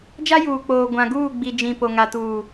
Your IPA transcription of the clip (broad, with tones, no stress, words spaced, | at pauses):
d͡ʒa˦juː˨k͡poː˨ ɡʷã˨ɡuː˦˨ ɡ͡bi˨d͡ʒĩ˨ po˨ŋa˨tuː˨